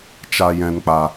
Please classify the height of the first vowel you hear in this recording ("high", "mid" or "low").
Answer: low